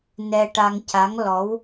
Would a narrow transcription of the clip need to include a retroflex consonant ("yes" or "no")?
yes